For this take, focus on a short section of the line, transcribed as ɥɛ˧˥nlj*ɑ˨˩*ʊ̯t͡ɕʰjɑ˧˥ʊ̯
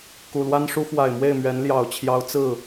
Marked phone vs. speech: correct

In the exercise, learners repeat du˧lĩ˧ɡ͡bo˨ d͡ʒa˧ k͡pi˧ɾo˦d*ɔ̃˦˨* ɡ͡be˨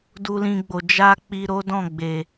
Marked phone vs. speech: correct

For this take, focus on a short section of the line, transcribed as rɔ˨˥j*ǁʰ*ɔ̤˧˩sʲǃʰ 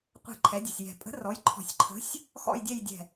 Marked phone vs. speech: incorrect: ǃʰ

